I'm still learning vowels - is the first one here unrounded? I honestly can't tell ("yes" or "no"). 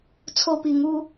no